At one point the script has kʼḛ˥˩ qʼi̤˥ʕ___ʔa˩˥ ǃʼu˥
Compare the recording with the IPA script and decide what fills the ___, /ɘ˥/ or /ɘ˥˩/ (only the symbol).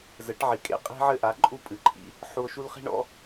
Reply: ɘ˥